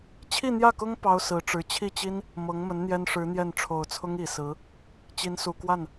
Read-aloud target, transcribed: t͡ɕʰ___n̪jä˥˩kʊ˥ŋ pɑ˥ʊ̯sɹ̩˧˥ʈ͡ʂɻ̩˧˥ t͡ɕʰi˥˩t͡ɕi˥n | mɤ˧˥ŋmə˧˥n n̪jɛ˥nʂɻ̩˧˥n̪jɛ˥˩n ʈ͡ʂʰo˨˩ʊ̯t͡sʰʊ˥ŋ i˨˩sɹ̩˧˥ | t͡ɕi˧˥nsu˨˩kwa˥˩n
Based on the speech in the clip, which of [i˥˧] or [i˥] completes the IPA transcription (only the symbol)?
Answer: i˥˧